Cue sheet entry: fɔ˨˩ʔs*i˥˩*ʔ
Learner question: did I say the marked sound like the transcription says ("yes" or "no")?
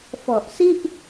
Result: yes